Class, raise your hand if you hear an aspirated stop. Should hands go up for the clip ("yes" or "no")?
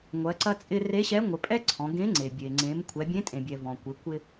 yes